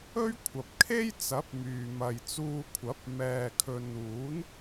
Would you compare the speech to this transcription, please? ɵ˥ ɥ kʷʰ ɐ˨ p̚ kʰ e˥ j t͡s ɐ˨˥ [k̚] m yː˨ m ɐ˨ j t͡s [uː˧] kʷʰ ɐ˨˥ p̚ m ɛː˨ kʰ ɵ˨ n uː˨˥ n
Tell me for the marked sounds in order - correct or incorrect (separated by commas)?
incorrect, correct